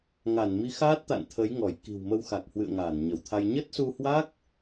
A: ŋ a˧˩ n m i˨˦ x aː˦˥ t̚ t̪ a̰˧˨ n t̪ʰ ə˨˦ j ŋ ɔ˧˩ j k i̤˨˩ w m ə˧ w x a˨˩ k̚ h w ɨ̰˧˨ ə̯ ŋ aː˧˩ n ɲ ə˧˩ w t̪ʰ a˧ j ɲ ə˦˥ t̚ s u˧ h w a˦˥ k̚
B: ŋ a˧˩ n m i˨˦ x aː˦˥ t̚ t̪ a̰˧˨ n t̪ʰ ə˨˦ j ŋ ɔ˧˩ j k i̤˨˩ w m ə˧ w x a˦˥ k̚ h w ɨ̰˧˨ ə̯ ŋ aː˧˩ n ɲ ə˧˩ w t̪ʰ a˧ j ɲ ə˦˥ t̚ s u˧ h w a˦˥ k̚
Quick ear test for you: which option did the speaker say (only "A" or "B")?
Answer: A